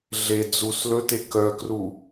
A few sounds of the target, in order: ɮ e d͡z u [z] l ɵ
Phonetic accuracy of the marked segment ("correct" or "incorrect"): incorrect